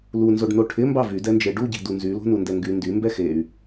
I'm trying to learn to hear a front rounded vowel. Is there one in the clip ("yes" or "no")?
yes